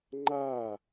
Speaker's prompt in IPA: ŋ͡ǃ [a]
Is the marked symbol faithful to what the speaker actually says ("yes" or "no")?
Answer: yes